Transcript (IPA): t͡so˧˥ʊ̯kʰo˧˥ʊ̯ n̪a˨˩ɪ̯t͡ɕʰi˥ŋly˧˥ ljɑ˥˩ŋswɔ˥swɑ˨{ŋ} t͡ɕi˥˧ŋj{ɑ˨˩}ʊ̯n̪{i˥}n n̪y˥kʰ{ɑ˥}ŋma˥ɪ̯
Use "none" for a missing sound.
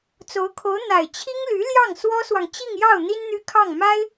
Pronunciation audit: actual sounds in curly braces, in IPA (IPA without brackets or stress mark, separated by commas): ŋ, ɑ˥˩, i˥, ɑ˥˩